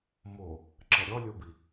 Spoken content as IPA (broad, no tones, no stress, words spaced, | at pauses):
mo | ǁɛɾʲɔlʲɤbi